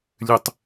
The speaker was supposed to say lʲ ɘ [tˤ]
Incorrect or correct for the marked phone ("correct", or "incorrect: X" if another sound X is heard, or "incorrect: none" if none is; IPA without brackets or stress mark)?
correct